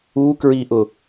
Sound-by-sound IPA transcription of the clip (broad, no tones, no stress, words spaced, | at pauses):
ukɹiʔʊ